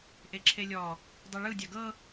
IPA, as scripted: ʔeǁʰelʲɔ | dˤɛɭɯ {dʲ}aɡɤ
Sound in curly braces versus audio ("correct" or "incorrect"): correct